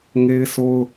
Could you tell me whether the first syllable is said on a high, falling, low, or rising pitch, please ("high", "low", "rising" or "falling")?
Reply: high